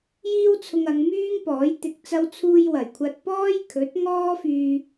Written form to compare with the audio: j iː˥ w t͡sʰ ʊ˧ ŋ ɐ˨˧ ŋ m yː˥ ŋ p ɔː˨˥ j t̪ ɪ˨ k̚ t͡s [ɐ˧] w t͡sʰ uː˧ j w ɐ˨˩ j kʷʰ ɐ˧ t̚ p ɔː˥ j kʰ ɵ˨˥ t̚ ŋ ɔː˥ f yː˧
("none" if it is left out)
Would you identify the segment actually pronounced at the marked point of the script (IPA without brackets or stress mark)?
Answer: ɐ˧